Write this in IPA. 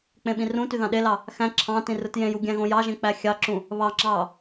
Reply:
k͡p ẽ ɓ ĩ r ũ t y ð ɑ̃ ɗ e l ɑ | x æ̃ ǁʰ ɑ̃ t ĩ r ɯ t j ẽ j u ɡʲ æ̃ ɣ õ j ɑ ʒ ẽ k͡p æ xʲ ɑ ǁ ũ | β ɑ ŋ͡ǁ ɑː

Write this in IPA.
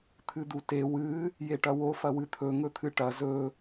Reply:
t̪ʰ ɨ d̪ u t e w ɨ | j e ʈ ɐ w o f ɐ w ɨ t̪ʰ ɵ ŋ ɵ t̪ʰ ɨ ʈ ɐ z ɵ

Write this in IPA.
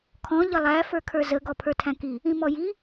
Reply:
kʰ ɔ̃ ʎ ə lˠ æ f ə˞ kʰ ə˞ z ə ɡ ɔ pʰ ə˞ tʰ æ̃ k i | ĩ m ɔ j i

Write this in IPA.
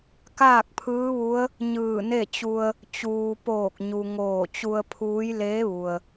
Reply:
k aː˥˨ k̚ pʰ ɯː˧˥ ʋ u˧˥ ə̯ | ɲ ɯː˧˩ n e˥˨ t͡ɕ u˧ ə̯ | t͡ɕ uː˩ p oː˧˩ k̚ ɲ u˩ ŋ oː˧˩ t͡ɕ u˧ ə̯ pʰ uː˧˥ j l eː˧˥ ʋ u˩ ə̯

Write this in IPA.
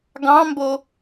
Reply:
ɡ ɑ̃ m b o

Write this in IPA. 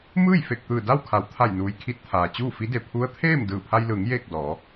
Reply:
m ɯː˥˨ j f e˧˩ k̚ t̪ ɯː˧˩ d a˥˨ w kʰ a˩ w t̪ʰ a˧˩ j n uː˩ j kʰ i˧ t̚ t̪ʰ aː˩ t͡ɕ uː˥˨ f i˧˥ d e˩ pʰ u˧˥ ə̯ t̪ʰ eː˥˨ m d ɯː˧˩ pʰ a˧ j l ɯː˩˧ ŋ j eː˥˨ k̚ d ɔː˩˧

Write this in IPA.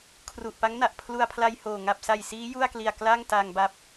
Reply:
kʰ r u˨˩ ʔ p a˦˥ ŋ n a˨˩ ʔ pʰ l u˧ a̯ pʰ l a˧ j h oː˨˩ ŋ a˨˩ p̚ s a˨˩ j s iː˦˥ j u˥˩ a̯ k l i˨˩ a̯ k l a˥˩ ŋ t a˧ ŋ b a˦˥ p̚

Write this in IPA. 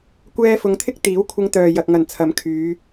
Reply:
kʷ ɛː˧ f ʊ˨˧ ŋ t̪ʰ ɪ˥ k̚ t̪ iː˨˥ w kʷʰ ɪ˧ ŋ t̪ œː˨ j ɐ˨ k̚ ŋ ɐ˨˩ n t͡sʰ ɐ˨˥ m kʰ yː˨˧

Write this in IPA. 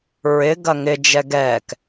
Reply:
ɹ ɪ ɡ ɐ ŋ ɪ d͡ʒ ɛ ɡ ɛː k

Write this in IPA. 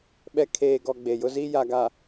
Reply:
ɓ ɛ˨ kʰ eː˨ ɡ ɔ˨ ɡ͡b e˨ j ʊ˦ z i˦ j a˨ ɡ a˨

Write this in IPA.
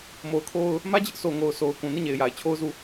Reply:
m o˨ ʊ̯ kʰ o˦ ʊ̯ | m ä˦ d͡ʑ ɪ˦ ʔ s o˨ ŋ o˨ ʊ̯ s o˨ ʊ̯ k ũ˨ n i˦˨ ɲ e˨ ɪ̯ j a˨ ɪ̯ t͡ɕʰ o˦ ʊ̯ z u˦˨

